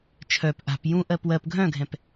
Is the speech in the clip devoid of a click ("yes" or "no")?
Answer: yes